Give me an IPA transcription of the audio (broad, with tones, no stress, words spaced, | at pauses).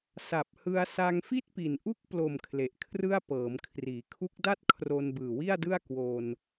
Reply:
sa˨˩p̚hɯ˧a̯ sa˧ŋfi˥˩t̚pi˨˩n ʔu˦˥k̚plo˨˩m kʰle˨˩ʔkʰrɯ˥˩a̯ pɤː˩˦mkʰriː˩˦ kʰu˦˥k̚da˥˩t̚kʰro˧n bɯː˨˩wi˥˩a̯dɯ˥˩a̯ kwo˧n